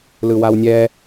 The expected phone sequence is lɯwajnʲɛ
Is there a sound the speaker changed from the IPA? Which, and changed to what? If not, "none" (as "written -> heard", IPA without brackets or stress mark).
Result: j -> w